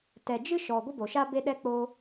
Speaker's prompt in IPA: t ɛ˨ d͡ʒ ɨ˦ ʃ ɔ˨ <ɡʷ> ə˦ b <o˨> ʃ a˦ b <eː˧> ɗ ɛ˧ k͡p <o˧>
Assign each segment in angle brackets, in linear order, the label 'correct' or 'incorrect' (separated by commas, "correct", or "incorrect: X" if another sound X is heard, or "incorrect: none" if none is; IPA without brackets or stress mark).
correct, correct, incorrect: e˧, correct